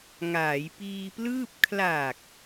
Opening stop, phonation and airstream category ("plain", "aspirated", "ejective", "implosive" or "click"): plain